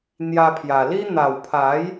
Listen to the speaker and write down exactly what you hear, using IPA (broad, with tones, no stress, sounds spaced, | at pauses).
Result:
n̪ j a˧ pʰ j a˨˩ l i˦ n̪ a˨˩ w pʰ a˨˦ j